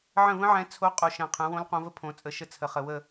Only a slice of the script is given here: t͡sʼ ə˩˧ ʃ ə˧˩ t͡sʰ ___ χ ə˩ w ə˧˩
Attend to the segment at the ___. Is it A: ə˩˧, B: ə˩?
B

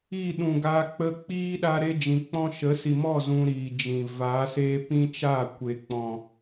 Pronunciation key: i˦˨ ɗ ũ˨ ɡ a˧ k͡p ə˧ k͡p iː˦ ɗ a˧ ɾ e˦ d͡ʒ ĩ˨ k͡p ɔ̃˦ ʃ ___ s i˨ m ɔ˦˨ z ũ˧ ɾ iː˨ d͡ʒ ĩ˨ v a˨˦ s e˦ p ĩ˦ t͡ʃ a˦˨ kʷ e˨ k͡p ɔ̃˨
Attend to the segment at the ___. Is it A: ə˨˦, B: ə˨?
A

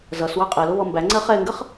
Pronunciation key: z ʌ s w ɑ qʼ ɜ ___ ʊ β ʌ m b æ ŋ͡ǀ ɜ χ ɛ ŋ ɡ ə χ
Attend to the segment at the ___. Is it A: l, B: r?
A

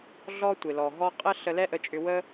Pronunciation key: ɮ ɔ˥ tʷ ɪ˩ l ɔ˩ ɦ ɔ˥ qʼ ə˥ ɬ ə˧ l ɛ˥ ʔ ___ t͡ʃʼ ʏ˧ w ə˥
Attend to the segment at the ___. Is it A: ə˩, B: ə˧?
B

